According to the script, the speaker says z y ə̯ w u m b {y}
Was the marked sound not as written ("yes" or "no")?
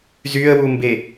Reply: yes